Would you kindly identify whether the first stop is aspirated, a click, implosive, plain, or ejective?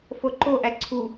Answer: click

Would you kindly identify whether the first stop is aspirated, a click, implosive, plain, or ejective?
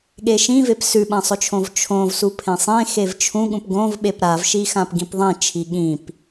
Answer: implosive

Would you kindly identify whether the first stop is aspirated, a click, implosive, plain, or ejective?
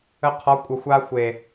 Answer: aspirated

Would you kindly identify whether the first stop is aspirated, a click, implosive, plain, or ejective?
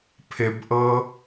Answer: aspirated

